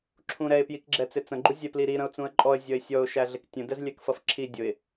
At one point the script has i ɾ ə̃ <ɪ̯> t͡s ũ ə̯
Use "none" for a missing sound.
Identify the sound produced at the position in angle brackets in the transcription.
ʊ̯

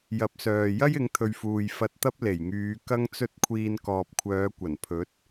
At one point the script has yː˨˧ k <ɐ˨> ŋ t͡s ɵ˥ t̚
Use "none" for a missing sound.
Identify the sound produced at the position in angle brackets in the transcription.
ɐ˥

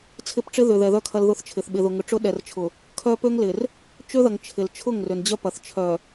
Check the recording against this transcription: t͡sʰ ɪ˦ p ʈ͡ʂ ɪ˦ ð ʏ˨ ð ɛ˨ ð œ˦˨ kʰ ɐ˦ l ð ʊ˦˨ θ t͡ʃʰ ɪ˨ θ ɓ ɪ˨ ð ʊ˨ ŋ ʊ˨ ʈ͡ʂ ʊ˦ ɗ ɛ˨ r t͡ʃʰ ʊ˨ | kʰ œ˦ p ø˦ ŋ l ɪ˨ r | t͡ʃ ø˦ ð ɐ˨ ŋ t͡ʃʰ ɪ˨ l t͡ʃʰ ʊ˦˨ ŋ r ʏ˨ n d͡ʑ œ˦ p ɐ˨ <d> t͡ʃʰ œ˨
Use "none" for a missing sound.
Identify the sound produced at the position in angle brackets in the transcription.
θ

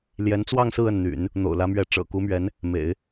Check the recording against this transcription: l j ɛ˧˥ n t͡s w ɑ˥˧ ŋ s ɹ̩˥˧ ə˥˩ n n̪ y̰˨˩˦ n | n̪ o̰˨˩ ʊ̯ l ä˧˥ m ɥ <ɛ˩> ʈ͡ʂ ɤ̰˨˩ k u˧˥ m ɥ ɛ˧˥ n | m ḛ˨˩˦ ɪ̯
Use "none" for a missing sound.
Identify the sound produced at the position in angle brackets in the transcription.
ɛ˧˥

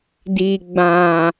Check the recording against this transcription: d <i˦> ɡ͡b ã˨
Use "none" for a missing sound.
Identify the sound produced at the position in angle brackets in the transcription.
i˨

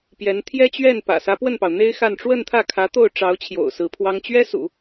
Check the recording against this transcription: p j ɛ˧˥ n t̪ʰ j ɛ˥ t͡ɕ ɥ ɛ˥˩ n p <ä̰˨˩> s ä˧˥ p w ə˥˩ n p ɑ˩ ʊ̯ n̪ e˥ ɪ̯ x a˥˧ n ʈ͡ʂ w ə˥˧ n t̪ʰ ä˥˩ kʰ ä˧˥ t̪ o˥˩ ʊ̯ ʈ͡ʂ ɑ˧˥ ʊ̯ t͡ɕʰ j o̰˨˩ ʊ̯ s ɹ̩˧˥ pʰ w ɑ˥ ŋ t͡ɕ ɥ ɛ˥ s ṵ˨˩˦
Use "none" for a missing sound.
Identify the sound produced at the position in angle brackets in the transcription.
ä̰˨˩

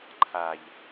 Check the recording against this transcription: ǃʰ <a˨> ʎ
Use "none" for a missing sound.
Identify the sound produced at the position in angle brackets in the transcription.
a˨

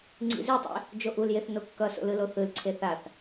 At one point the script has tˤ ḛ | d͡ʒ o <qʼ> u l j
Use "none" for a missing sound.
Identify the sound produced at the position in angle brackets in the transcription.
ʔ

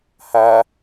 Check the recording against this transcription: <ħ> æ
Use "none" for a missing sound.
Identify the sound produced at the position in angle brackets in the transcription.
h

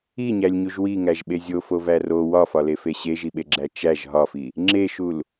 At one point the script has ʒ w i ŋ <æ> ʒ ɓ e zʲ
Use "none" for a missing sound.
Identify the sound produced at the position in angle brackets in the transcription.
æ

